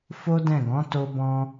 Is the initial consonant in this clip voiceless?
yes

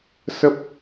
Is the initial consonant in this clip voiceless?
yes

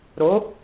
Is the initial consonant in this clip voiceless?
no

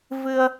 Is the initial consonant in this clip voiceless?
no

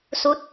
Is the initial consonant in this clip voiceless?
yes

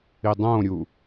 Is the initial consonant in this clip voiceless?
no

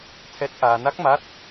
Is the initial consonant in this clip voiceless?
yes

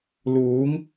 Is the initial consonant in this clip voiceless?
no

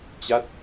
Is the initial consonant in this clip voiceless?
yes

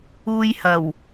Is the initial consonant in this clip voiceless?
no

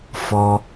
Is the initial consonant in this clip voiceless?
yes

